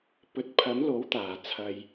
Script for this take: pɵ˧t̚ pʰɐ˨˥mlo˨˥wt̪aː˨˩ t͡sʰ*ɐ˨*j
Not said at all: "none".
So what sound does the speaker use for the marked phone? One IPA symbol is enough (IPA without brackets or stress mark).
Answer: ɐ˨